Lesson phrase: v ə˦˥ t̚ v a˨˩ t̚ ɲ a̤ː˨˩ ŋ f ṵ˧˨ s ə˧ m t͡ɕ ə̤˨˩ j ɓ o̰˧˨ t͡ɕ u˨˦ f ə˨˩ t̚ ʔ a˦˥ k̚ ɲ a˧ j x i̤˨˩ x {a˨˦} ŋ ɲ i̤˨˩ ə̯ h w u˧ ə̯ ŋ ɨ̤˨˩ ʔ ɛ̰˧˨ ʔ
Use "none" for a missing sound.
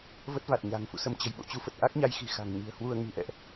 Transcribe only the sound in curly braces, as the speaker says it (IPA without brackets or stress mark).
a̤˨˩